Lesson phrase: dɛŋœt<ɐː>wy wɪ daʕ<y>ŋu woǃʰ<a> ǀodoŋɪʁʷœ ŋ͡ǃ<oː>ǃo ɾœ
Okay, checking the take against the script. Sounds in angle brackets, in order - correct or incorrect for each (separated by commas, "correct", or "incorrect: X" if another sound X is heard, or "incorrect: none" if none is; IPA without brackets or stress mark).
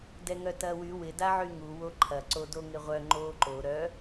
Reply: correct, correct, incorrect: ɐ, correct